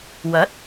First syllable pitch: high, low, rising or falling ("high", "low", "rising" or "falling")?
rising